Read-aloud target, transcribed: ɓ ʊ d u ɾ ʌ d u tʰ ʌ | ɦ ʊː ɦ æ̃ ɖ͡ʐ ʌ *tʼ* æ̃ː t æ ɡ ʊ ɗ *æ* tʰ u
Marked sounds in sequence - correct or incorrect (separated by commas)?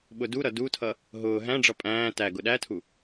incorrect, correct